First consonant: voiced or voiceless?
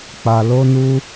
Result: voiceless